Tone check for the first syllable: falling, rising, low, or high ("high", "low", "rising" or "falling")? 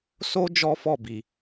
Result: high